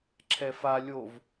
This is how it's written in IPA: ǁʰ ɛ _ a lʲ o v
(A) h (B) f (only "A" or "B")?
B